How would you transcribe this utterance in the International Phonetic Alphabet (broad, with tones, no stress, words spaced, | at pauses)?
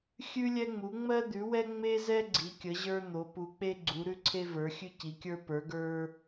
xʲʉ˧lʲɛ˧ŋ͡mu˩˧ ŋ͡mɜ˧d̪ʉ˩˧wɛ˧ ŋ͡me˧zɛ˧ ɡ͡ǀi˩˧kʲə˩˧ʑə˞˧ n̪o˩˧ pu˩˧k͡pe˧ ɡ͡ǀu˩˧ ɾʉ˧ǀʰe˧və˞˩˧ xʲʉ˧ci˩˧kʲə˞˧ pə˞˩˧ɡə˞˧